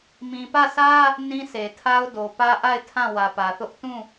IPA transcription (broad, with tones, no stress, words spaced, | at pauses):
mĩ˨pä˦˨sä˦ | nĩ˦se˨tʰa˦ʊ̯ do˨pä˦ʔa˦˨ɪ̯ tʰã˦˨ wä˨pä˨θʊ˦ʔ tũ˦˨